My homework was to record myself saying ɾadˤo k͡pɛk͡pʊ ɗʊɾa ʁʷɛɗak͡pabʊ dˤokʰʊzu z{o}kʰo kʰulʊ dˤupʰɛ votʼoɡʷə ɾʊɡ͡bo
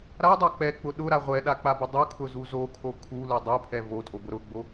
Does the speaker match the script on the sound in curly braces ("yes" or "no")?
yes